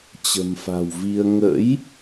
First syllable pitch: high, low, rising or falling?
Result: low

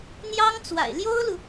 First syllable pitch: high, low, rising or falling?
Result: high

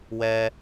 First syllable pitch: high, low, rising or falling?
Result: high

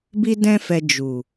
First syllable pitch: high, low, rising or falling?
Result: high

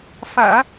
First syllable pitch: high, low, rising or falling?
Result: low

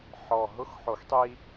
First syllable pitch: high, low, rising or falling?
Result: low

